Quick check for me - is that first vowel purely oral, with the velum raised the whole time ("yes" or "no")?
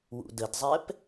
yes